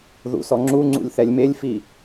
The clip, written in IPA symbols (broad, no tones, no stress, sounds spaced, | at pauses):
ð ṵ s ɔ ŋ͡ǁ u ŋ͡ǀ ṵ lʲ θ ɛ lʲ m e lʲ f i